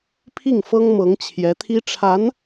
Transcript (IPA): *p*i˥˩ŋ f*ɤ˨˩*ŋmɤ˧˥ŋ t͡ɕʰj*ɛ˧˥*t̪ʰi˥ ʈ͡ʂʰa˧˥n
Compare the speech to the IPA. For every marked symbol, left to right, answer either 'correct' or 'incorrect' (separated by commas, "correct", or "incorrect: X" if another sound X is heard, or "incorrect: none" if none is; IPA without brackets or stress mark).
incorrect: pʰ, incorrect: ɤ˥, correct